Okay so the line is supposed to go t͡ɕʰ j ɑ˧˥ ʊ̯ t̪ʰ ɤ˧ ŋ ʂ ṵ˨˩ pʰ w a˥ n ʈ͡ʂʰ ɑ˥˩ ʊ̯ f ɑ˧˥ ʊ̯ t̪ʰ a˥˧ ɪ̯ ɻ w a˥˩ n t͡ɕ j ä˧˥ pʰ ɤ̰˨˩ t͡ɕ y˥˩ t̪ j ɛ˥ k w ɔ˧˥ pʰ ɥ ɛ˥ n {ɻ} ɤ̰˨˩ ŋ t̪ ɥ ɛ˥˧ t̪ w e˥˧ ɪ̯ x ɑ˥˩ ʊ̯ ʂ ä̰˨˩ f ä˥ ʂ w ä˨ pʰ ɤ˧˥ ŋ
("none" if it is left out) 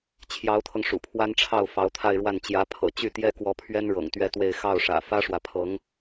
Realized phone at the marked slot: ɻ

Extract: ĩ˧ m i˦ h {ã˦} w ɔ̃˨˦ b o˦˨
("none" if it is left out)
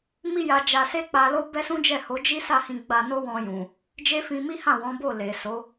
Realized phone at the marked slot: ã˦˨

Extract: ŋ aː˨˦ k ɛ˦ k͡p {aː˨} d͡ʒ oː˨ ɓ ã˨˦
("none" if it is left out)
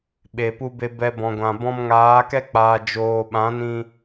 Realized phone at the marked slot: aː˨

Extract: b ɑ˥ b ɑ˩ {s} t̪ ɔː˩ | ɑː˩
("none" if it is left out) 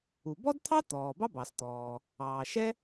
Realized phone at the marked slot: s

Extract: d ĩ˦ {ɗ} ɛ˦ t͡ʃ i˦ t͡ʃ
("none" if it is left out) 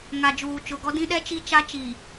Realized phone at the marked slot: ɗ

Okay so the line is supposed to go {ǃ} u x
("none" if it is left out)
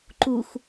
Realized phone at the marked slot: ǃ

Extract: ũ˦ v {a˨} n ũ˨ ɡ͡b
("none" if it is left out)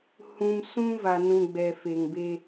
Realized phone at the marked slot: a˨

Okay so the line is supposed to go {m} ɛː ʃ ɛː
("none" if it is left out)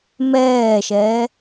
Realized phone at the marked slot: m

